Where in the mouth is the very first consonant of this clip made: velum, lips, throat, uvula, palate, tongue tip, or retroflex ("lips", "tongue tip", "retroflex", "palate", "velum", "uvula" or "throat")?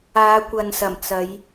velum